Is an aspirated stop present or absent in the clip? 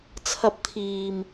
present